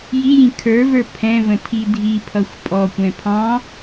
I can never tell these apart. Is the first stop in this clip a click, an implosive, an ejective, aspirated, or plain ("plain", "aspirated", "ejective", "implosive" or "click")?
aspirated